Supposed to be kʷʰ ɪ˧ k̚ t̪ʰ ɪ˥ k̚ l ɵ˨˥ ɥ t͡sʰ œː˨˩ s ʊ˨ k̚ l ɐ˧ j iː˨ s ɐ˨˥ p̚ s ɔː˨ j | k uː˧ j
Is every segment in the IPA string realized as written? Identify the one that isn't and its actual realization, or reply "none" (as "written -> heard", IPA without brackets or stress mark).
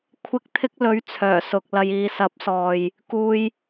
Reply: none